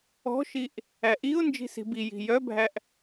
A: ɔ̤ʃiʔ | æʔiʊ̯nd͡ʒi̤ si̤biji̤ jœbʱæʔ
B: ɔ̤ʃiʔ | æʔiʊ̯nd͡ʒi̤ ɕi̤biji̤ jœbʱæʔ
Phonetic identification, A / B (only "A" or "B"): A